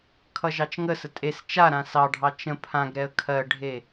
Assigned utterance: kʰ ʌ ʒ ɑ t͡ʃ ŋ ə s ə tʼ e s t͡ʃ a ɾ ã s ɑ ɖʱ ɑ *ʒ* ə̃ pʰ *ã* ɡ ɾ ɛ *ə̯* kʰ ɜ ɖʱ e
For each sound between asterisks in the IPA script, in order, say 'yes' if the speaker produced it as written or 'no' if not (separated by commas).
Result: no, yes, yes